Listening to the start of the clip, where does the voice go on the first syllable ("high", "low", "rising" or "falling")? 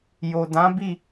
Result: low